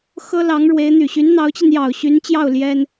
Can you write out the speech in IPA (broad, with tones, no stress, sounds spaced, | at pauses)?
x ɤ˥ l ɑ˧˥ ŋ ɻ w e˧˥ ɪ̯ n̪ y˨˩ ɕ y˧˥ n n̪ ɑ˧˥ ʊ̯ t͡ɕ i˧ n j ɑ˨˩ ʊ̯ ɕ y˧˥ n t͡ɕ j ɑ˥˩ ʊ̯ l j ɛ˥ n